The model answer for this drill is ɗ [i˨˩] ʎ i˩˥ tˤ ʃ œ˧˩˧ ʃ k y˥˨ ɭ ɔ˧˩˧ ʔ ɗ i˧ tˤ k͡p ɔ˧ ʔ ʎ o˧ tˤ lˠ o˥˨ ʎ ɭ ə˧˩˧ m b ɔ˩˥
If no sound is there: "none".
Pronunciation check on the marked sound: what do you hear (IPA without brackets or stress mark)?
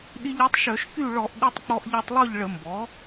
i˧